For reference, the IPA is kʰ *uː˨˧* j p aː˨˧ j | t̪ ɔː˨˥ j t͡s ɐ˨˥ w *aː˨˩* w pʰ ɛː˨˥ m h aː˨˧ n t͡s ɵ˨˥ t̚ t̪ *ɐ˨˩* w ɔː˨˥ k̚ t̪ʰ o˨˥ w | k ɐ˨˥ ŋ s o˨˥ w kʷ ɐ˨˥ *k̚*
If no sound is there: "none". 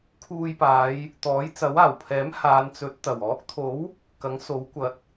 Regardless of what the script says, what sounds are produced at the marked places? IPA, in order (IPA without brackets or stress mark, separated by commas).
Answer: uː˧, aː˨˩, ɐ˨˩, t̚